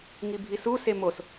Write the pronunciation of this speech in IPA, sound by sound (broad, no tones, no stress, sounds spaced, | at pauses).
ŋ i bʱ i s u s e m o s